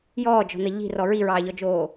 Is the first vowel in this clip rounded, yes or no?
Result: yes